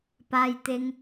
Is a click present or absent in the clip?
absent